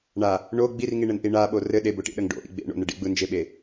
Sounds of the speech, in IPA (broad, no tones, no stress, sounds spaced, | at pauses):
ɳ a | ɳ o ɡ͡b i r ŋ i ɳ ɘ n ʔ i ɳ a ɓ o r ɘ ɗ e b o ʈ ḭ ɗ ə ŋ ɖ o̰ ʔ ḭ ɡ͡b ḛ ɳ o̰ n ə ɖ ḭ ɡ͡b ɯ n d͡ʒ e ɓ e